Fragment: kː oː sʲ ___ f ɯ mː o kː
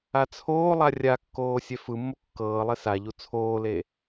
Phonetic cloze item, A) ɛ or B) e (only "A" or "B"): A